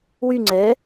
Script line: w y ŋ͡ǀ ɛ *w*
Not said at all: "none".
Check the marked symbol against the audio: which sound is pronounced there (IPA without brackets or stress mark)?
none